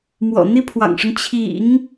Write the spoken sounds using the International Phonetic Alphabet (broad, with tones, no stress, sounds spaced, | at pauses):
m w ɔ̰˨˩ n̪ i˥ pʰ w ɑ̰˨˩ ŋ ʂ ʊ˦ ŋ t͡ɕʰ ḭ˨˩˦ ŋ